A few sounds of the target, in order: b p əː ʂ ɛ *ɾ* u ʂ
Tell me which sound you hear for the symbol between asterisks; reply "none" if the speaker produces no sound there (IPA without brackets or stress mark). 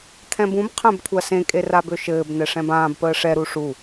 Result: ɾ